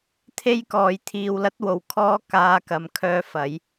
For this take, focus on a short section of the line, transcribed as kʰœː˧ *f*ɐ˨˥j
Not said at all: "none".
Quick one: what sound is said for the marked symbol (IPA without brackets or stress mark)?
f